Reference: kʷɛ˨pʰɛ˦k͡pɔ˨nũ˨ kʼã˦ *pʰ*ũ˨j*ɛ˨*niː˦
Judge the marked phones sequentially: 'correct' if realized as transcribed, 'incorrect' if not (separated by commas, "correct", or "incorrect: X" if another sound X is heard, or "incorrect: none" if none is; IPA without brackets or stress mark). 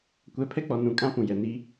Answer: incorrect: p, correct